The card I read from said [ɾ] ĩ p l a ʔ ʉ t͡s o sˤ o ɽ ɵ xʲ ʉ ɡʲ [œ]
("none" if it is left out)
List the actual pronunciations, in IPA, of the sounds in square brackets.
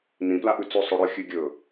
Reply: n, ɵ

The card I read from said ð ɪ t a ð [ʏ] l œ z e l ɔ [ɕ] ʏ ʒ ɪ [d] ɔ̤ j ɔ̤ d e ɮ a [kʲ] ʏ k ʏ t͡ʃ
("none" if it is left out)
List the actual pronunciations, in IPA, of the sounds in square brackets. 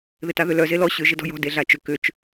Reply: ʏ, ɕ, d, t͡ʃ

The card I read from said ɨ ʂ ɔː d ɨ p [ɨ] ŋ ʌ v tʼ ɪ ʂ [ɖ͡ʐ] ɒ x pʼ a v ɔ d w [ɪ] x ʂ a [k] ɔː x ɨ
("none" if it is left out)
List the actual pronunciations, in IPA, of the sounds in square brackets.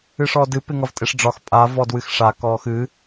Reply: ɪ, ɖ͡ʐ, ɨ, k

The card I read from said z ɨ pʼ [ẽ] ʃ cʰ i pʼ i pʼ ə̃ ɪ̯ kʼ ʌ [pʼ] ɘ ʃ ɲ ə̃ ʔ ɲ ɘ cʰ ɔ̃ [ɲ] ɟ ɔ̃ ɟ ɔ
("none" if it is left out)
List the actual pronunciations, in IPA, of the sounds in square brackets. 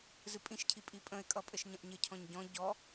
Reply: ĩ, pʼ, ɲ

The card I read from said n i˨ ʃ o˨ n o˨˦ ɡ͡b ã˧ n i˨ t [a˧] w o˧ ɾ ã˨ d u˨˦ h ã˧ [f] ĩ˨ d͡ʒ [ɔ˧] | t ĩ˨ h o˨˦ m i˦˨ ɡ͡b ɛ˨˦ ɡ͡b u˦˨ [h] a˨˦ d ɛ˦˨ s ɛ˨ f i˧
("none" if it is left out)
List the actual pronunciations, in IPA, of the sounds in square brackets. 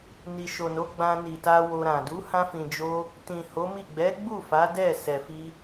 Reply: a˧, f, o˧, f

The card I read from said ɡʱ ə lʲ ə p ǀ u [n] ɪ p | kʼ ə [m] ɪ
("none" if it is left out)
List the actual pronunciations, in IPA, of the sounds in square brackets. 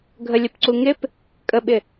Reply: ŋ, ɓ

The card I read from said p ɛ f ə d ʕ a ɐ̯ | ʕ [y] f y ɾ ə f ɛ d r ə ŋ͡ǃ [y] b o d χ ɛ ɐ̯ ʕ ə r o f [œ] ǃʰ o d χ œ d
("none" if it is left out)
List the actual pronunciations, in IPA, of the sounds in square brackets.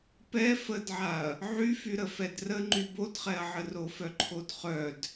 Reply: y, y, œ

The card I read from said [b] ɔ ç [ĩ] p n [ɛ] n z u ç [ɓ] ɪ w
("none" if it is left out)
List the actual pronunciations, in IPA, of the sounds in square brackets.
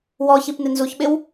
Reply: w, i, ɪ, ɓ

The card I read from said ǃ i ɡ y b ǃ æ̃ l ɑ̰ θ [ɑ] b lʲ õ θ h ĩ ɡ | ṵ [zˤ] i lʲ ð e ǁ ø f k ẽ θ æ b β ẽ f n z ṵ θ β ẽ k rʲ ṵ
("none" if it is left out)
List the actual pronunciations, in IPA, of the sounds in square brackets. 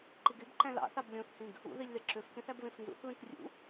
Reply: ɑ, ð

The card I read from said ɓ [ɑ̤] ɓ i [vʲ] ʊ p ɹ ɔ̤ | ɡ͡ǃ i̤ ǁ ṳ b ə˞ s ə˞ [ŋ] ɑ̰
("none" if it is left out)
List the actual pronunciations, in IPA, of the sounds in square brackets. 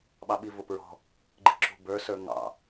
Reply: ɑ, v, ŋ

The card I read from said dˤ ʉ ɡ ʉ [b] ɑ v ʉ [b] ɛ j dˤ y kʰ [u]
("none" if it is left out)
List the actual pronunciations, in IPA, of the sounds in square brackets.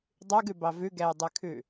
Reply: b, ɡ, ʉ

